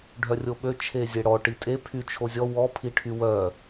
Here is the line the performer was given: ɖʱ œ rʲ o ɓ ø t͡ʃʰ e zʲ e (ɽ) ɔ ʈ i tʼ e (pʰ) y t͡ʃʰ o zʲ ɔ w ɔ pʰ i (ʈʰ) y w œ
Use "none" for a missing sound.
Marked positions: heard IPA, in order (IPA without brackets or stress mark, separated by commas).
ɽ, pʰ, ʈʰ